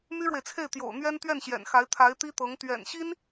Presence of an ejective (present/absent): absent